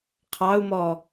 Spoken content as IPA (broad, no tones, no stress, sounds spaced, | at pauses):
qʰ ɑ u̯ m ɔ